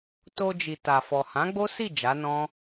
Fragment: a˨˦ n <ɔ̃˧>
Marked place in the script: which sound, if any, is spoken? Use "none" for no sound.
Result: ɔ̃˦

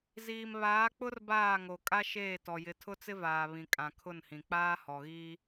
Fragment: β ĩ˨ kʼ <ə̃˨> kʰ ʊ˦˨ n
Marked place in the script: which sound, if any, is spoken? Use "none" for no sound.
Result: ã˨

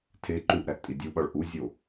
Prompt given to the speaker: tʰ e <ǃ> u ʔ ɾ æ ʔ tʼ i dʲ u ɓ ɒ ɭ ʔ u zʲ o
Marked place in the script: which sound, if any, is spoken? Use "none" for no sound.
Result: ǃ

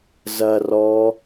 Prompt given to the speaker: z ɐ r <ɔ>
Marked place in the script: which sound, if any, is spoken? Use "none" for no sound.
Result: ɔ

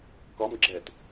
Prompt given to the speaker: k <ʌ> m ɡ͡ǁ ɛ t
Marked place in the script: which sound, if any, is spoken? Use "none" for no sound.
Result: ɒ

